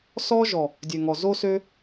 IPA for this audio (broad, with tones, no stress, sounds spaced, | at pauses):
s ɔ˧ ʒ ɔ˨ | dʲ ø˨ ŋ ɔ˨ z o˦ s ø˦